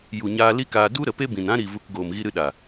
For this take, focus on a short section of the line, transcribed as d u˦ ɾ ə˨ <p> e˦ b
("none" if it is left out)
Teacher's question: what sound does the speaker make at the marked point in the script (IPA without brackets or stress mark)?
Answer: p